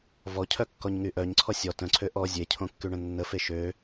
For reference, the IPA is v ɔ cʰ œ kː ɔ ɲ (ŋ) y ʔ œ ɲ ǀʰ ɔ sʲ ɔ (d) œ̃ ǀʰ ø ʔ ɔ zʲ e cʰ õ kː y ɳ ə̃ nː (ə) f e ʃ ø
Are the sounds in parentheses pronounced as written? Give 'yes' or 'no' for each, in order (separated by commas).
yes, no, yes